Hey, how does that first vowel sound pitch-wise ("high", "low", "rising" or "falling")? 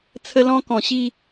high